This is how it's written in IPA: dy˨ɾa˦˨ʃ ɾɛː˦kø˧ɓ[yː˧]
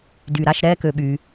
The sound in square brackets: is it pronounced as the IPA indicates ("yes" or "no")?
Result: yes